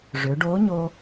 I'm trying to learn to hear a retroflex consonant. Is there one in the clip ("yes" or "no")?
yes